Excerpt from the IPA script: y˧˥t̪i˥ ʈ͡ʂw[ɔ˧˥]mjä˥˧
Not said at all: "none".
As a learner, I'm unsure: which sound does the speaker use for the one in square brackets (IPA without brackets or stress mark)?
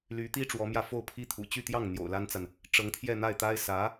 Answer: ɔ˧˥